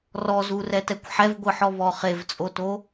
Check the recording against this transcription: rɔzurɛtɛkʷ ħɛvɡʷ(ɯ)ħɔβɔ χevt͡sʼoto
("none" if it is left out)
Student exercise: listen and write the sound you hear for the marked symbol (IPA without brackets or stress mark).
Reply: ɯ